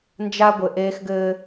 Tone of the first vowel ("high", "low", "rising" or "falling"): high